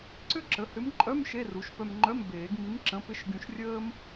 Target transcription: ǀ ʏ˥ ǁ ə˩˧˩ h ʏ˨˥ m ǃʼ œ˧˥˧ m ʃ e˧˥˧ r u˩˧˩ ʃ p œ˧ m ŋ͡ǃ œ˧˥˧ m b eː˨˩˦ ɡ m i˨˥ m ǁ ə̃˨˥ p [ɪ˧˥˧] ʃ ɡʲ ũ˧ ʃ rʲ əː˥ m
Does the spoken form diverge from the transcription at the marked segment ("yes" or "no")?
no